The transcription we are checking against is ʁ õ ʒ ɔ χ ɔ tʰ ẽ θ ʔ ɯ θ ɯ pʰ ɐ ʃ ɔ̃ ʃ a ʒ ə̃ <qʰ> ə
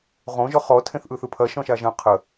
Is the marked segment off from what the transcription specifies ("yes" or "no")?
no